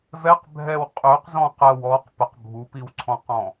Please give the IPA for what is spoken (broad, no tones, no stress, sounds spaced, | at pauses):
v ɛ q bʱ ɛ w qʼ ø q z ɔ̃ q ə w ɔ q p ə q bʱ u p i w ǀʰ ɔ̃ q ɔ̃